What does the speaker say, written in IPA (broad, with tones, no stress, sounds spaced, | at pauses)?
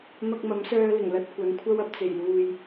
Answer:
m ɐ˧ k̚ m ɐ˨˥ m s œː˧ l ɪ˨˩ ŋ l ɐ˧ t̚ kʷ ɐ˨˧ n kʷʰ ɐ˥ w ɐ˧ p̚ t͡s e˨˩ j l uː˨ j